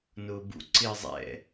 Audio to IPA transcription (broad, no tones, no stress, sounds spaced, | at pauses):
n ʊː b ṵ ǀ ɪː zˤ ɛ̰